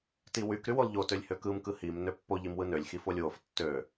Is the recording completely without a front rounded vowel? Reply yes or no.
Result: no